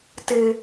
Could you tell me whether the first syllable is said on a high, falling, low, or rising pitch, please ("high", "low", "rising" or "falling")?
high